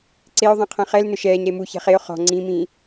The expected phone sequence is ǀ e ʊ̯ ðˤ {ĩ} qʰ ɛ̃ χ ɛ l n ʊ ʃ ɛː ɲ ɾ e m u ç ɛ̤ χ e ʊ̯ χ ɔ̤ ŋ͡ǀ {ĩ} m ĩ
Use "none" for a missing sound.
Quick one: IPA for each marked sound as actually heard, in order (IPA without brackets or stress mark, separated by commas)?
ĩ, ĩ